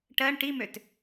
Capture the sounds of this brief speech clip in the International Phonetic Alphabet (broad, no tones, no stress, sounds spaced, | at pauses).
ʈ ɜ ɳ ʈ i m ø t